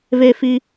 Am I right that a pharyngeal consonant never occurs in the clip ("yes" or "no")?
yes